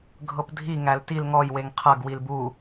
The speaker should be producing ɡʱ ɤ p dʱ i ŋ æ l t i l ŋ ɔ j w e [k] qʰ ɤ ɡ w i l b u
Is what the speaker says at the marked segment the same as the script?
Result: no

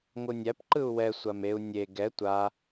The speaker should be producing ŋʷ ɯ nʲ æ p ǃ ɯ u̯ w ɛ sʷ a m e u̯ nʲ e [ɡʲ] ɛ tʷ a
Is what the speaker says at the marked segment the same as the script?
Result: no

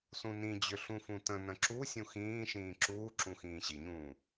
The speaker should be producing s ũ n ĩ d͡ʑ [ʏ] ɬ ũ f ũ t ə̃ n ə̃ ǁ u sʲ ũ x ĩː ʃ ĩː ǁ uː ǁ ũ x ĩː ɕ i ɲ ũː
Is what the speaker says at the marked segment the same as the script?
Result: yes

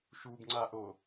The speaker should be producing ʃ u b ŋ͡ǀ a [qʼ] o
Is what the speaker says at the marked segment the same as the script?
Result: no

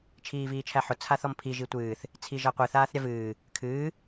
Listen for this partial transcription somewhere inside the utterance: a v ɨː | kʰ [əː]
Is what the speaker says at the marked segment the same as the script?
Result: no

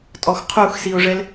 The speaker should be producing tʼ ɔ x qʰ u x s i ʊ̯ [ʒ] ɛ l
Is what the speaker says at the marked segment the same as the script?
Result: no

